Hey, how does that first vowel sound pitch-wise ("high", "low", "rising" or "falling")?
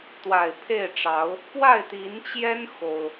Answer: low